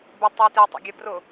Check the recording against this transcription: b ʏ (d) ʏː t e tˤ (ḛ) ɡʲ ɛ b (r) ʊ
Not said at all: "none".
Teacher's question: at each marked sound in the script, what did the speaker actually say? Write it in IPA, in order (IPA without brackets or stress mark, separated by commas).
tˤ, ḛ, r